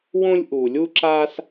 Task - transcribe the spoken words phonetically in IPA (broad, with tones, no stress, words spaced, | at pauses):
wõ˥lʲʔu˧lʲu˥ ǁa˥s